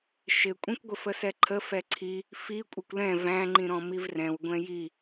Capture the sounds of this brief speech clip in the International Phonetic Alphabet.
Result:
ʃɪkʷʼĩkʷɡʷɪ fəsɛǃʰə fɛǀʰi | fi kʷʼɪkʷlɛ̃ væ̃ŋ͡ǃĩɾɔ̃ mivrɛ̃w ɡʷɛ̃ji

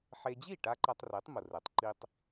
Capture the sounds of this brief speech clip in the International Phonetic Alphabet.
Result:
ħe˧ d͡ʑi˥˩ʈa˧ ǃa˧tˤre˩˥tˤ mʊ˩rɛ˩tˤ ǃi˥tˤ

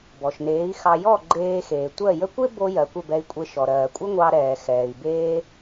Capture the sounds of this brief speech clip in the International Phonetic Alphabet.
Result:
bɔ˩ʃneː˩˥i̯xɑ˧ jɔ˥˩ ɡ͡ǃeː˧xeː˩tʷɜ˥˩jə˥ kʷe˥ bo˧jɜ˩ kʷə˥˩bɛ˧i̯kʷʼe˧ ʃɔ˩ɾɜː˩kʷʼə˥ŋʷɑ˧ ɾɛː˩ xɛː˩i̯beː˧

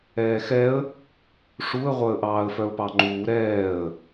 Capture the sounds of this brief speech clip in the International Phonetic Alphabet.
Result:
ɛːxɛə̯ | ʂuə̯ʁʷœə̯ʔɑːə̯ fœʊ̯pɑŋ͡ǃuː ɾɛːə̯

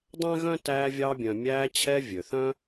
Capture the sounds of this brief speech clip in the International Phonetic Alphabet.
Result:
dˤæ̃˥ɣœ̃˥ tæː˦vʲɑː˦bʲœ̃˨ mʲæː˦t͡ɕʰɛ˦ vʲø˩θœ̃˥

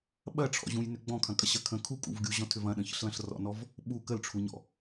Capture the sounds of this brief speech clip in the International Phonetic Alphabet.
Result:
ɓɐʈ͡ʂʰɔ̰ʑũjnʏ ɡ͡bɔ̃kʰɐ̃kʼɐɕɐ kʰə̃ kʰukʼṵv ɡʲuʑɔ̃tʰʏv ɐ̃ɗə̃çə̰ɬlɐ̃ɬ rɔ̰nɔv | ɓu kəlʈ͡ʂʰuɲɔ̰

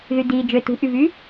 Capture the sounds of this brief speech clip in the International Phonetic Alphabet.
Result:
ðydi d͡ʒø tṳʔyvy

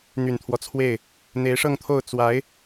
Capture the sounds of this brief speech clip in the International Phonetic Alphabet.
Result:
n̪y˨˩nt̪ʰwɔ˦t͡sʰwe˥˩ɪ̯ | n̪e˧˥ɪ̯ʂɤ˥˧ŋt̪ʰo˥˩ʊ̯ t͡swa˧˥ɪ̯

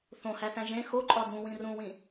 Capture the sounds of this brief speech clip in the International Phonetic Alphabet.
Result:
θõhæθæ̃ ʒẽ xoǃʼɒ dũwĩ rũwĩ

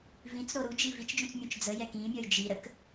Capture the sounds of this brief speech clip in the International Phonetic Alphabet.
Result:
vĩt͡sɾo ɾud͡ʒi vit͡ʃd͡ʒũt͡smʲũt͡ʃ d͡zəjɛ kĩmʲɔj d͡ʒi ɾək

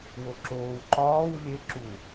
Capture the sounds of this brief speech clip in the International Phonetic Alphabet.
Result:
woǁoːw ǃɒːw lʲe ǁu

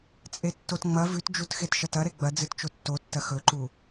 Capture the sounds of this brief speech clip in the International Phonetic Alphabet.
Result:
t͡sʼetːotŋ͡mɐ vʉtd͡ʒut xetʃɐtɐ ɾeɡ͡bɐ d͡zɨtt͡ʃotːotːɐ xɵǃu

